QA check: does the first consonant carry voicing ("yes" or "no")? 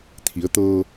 no